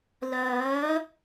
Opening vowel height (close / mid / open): mid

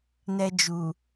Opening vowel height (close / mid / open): mid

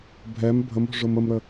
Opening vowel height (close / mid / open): mid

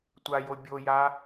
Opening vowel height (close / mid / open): open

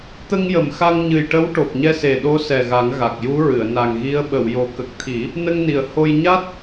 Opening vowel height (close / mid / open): mid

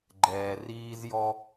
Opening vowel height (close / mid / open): mid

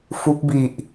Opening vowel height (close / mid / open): close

